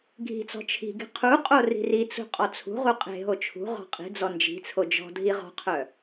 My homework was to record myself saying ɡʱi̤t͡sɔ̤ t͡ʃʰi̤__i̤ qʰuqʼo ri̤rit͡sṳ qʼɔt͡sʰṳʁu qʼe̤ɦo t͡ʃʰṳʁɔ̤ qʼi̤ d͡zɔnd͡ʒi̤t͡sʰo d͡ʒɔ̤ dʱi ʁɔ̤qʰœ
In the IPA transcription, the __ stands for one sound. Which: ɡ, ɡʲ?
ɡ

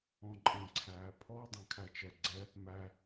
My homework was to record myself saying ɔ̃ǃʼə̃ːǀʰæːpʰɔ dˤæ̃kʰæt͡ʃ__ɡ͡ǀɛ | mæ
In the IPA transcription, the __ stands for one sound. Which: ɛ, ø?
ɛ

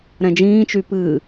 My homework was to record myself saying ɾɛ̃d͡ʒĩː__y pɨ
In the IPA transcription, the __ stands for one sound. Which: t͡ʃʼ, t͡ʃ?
t͡ʃ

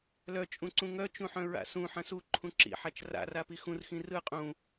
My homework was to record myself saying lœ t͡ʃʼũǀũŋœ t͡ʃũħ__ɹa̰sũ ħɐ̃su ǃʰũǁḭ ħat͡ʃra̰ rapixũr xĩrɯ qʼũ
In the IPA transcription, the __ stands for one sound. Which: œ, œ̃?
œ̃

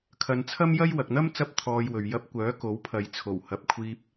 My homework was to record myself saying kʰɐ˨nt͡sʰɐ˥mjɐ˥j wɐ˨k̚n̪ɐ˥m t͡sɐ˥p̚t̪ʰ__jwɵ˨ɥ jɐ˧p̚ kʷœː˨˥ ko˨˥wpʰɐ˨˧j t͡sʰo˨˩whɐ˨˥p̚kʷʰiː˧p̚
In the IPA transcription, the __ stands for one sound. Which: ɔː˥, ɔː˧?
ɔː˧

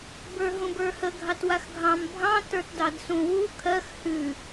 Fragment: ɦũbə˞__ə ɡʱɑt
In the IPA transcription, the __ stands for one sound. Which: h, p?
h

